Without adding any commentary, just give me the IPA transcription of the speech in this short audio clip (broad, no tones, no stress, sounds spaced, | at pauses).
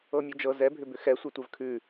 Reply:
ɤ mʲ œ d͡ʒ ɤ z ɛ bʱ ʏ b ʏ x ɛ sʷ ɛ tʷ œ v kʰ ʉ